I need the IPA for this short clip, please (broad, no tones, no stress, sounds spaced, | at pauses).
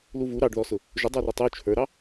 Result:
l u v u ɾ ɑ ɖ ð ɔ s ʊ | ʒ ʊ dˤ ə˞ r ʊ tˤ u t͡ʃʰ ə˞ ɾ ɑ